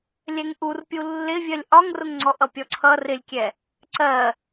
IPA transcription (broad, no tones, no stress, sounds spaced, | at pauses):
lʲ ɛ ŋ ʔ u r pʲ u lː ɪ vʲ ɜ lʲ ʔ ɒ ŋ r ʊ ŋ ŋ͡ǀ ɔ ʔ ʌ pʲ ɔ ǀʰ ʌ r ɪ lʲ kʲ ɛ | ǀ ɜ